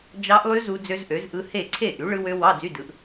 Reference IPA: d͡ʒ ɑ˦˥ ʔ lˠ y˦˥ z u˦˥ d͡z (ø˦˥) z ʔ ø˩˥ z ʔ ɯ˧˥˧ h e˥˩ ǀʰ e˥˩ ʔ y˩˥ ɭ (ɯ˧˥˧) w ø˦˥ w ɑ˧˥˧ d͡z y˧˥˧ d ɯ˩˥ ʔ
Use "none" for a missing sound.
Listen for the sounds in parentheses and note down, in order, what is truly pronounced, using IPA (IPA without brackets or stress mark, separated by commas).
ø˦˥, ɯ˦˥